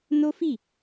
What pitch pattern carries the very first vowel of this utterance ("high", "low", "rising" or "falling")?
high